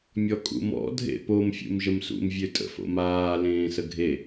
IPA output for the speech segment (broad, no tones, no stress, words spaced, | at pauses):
mʲɔkʼṵmɔ̰ dʱḛpom fʲṵmʒəmsṵm vʲøtʼə̰fo̰maː lẽːsəɡʱe